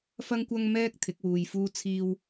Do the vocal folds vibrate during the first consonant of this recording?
no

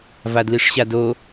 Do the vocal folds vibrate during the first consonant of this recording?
yes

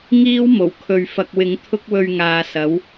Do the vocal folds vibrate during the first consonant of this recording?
yes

